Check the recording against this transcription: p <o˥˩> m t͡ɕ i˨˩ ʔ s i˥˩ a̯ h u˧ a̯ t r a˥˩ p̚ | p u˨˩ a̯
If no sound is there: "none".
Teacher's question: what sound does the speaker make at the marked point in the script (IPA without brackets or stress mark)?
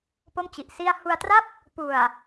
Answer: o˥˩